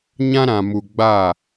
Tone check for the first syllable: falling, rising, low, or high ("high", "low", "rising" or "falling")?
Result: high